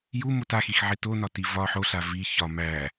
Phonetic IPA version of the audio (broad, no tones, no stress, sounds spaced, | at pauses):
j u m o t a x i x ʕ i t o n ɒ t i v ɒ ħ o ɬ a v i ç ɒ m æ